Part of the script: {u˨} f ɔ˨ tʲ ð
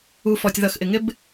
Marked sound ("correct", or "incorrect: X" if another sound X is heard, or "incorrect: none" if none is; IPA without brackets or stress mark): correct